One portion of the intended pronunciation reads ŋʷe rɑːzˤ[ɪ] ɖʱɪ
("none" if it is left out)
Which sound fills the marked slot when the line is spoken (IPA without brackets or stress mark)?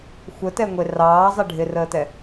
ɪ